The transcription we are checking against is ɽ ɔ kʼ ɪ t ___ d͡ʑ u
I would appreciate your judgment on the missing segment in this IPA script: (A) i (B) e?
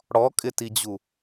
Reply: A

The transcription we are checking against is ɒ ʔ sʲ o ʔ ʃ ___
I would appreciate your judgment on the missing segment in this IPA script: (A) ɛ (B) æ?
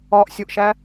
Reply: B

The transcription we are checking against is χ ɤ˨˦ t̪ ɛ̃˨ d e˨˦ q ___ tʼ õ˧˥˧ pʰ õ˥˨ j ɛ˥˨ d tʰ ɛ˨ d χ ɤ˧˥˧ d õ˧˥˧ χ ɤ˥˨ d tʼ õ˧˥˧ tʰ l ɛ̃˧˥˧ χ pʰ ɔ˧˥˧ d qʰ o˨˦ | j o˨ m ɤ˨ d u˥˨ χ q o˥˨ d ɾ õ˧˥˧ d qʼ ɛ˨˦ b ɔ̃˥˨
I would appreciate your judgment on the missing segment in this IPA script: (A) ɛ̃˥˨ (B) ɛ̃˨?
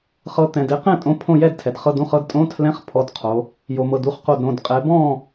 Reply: A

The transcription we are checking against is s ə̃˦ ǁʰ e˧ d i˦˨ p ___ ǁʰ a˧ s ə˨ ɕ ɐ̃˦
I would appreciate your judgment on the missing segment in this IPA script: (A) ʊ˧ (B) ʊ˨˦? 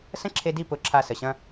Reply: B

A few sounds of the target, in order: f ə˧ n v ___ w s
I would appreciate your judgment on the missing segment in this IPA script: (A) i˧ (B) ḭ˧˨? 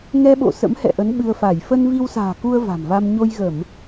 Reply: A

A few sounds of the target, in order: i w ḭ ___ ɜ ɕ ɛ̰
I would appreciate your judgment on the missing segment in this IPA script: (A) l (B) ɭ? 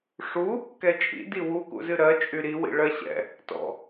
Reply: B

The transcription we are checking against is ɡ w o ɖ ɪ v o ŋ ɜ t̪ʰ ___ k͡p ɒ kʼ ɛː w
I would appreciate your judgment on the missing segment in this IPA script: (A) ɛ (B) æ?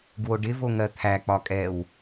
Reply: B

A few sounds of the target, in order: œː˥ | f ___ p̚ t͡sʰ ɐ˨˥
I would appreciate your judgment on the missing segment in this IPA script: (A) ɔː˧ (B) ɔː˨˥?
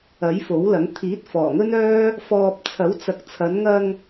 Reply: A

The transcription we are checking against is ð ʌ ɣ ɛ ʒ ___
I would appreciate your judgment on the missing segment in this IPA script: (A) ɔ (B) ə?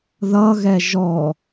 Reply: A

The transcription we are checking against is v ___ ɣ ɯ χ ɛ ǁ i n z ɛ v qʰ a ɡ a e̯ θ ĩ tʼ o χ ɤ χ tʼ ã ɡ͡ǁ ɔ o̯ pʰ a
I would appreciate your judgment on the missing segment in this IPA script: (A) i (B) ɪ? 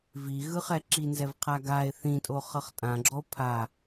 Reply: A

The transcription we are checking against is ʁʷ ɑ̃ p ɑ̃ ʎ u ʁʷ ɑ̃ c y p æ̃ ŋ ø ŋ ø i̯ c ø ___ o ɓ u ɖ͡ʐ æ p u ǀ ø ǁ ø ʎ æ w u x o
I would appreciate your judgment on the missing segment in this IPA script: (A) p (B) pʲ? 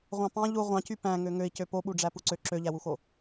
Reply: A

